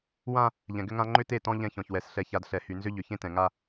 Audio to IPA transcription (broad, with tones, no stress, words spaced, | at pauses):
wã˦ | ʎɛ̃˨ɡʏ˦ŋã˦ ŋ͡ǃʏ˦te˦˨tɔ̃˦ ʎɛ̃˦çɔ̃˨çwɛ˨s ɬɛ˨ça˨d ɬɛ˨hy˨nzʏ˦ ʎʏ˨çẽ˦tɛ̃˨ŋa˦